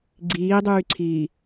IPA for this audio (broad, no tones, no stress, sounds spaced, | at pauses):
ɡ͡ǀ iː dˤ yː ǀʰ iː